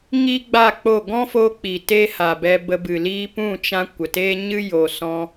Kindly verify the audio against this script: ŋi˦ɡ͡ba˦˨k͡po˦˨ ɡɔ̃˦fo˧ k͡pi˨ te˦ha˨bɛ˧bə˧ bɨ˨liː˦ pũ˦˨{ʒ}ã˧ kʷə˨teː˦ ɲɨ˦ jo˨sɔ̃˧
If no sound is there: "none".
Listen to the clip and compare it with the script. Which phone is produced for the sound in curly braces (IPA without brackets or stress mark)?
t͡ʃ